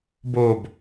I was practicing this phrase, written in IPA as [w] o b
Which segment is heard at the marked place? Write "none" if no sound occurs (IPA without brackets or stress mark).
b